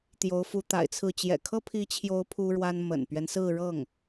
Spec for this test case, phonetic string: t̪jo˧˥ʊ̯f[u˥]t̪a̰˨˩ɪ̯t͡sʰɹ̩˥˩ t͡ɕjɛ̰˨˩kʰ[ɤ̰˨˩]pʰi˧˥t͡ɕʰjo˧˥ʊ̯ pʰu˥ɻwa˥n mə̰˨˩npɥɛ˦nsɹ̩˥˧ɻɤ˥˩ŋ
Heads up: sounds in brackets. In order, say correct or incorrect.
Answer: incorrect: u˧˥, incorrect: ɤ˥

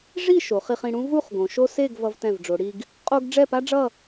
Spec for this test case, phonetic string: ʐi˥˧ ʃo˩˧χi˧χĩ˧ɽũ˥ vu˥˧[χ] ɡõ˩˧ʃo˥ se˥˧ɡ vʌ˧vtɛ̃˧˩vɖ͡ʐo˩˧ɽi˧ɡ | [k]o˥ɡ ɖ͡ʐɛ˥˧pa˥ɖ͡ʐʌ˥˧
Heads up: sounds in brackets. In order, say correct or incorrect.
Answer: correct, incorrect: qʼ

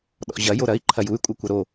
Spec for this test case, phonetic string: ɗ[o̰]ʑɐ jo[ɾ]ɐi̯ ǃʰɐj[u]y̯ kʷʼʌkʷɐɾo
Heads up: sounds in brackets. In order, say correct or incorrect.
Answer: incorrect: ɔ̰, correct, correct

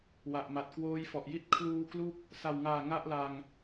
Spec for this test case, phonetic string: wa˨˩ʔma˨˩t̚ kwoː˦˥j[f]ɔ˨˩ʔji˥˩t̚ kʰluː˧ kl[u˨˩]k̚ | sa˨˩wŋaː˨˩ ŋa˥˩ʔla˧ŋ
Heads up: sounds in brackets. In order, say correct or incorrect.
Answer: correct, incorrect: u˥˩

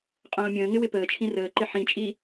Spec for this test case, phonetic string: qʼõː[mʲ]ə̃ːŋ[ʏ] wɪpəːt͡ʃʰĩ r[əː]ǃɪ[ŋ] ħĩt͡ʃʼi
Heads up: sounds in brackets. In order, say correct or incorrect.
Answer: correct, incorrect: ɪ, correct, incorrect: none

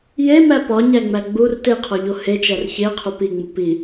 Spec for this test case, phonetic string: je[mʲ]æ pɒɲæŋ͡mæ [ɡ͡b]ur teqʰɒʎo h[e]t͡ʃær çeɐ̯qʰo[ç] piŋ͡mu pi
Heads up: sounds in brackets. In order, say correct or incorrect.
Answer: incorrect: m, correct, correct, incorrect: none

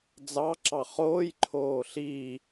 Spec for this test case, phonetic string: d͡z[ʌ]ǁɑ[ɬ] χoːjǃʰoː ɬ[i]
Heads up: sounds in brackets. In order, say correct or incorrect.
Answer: incorrect: ɑ, incorrect: none, correct

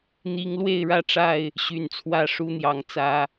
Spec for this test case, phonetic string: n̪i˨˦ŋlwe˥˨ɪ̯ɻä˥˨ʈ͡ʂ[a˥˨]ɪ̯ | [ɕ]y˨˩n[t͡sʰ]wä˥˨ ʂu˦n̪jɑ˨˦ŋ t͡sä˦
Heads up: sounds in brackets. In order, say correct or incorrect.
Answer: correct, correct, correct

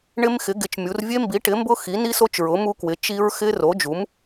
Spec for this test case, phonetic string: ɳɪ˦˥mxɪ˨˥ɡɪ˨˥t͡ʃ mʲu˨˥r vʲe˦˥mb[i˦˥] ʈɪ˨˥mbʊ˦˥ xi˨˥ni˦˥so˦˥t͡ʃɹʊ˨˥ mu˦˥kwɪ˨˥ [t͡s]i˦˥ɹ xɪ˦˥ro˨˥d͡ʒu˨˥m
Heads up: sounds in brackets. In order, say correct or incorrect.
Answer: incorrect: i˨˥, incorrect: t͡ʃ

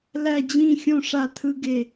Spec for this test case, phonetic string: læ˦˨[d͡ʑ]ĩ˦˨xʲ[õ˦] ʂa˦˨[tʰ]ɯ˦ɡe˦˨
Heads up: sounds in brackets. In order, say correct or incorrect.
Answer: correct, correct, correct

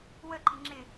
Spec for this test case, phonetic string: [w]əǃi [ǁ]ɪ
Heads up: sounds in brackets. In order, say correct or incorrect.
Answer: correct, incorrect: ŋ͡ǁ

